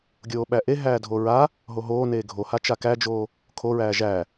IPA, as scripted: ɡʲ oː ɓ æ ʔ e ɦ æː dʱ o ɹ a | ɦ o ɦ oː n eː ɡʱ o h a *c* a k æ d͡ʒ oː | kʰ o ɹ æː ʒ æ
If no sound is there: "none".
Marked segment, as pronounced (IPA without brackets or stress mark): t͡ʃ